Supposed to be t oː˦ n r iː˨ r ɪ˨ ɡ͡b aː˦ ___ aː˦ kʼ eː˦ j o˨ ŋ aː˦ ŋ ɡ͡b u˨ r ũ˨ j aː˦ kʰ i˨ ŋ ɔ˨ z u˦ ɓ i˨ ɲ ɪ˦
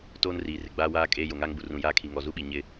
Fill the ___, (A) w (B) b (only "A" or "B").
A